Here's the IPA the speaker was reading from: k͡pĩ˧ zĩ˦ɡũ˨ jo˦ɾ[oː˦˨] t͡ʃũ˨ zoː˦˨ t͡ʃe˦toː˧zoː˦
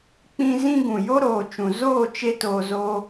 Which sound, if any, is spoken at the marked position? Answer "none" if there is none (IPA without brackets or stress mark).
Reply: oː˨